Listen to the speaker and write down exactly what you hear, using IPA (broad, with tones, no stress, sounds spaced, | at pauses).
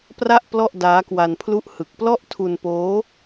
p r a˥˩ ʔ p l ɔ˥˩ ʔ d aː˦˥ k w a˧ n pʰ l u˥˩ ʔ h ɯ˨˩ k̚ p l ɔ˥˩ ʔ tʰ u˧ n p oː˦˥